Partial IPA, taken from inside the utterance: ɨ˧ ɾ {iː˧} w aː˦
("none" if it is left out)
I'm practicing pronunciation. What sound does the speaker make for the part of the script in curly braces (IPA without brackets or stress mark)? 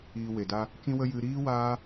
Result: iː˦